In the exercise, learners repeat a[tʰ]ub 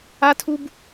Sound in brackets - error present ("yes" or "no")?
no